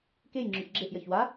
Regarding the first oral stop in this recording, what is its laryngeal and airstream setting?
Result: plain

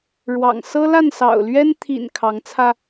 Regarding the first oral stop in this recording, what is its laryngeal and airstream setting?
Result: aspirated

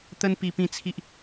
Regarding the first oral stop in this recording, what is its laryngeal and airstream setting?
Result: plain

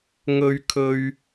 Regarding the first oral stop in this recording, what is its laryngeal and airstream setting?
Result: aspirated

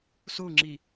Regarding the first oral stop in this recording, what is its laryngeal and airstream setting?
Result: click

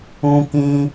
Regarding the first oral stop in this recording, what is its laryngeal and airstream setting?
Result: plain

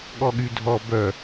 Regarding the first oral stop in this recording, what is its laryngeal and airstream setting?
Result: implosive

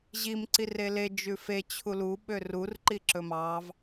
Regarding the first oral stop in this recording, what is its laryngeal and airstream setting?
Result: click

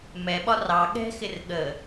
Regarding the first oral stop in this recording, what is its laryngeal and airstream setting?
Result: implosive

